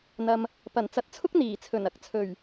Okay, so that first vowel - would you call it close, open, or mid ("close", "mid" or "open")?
open